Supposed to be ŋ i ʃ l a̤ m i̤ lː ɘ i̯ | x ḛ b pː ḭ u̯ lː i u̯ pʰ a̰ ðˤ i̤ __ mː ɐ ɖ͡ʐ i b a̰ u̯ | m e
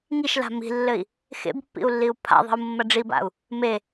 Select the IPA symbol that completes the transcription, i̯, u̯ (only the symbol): u̯